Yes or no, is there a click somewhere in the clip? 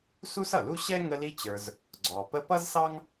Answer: yes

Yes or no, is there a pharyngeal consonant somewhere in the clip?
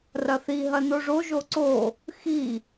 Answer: no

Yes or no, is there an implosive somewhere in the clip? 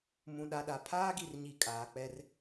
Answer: yes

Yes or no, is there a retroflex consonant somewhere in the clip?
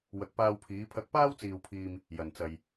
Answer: no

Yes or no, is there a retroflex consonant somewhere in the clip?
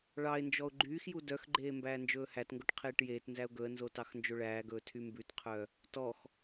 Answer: yes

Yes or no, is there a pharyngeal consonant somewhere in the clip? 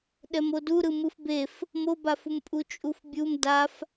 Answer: no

